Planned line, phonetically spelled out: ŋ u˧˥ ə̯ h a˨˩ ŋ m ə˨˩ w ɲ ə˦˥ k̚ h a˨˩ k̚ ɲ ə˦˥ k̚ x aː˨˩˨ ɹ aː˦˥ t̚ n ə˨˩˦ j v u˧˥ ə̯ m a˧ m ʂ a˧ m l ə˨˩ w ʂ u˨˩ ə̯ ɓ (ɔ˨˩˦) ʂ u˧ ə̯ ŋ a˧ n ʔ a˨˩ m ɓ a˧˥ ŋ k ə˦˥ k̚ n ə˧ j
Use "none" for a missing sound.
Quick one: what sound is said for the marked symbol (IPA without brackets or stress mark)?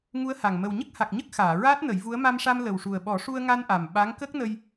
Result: ɔ˨˩˦